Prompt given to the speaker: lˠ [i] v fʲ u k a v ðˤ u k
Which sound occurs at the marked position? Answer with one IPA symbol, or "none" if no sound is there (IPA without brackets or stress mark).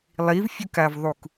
i